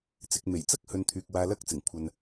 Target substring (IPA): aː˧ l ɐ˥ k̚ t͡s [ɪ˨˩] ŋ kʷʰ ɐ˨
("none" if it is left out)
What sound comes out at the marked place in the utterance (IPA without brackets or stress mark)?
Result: ɪ˨˩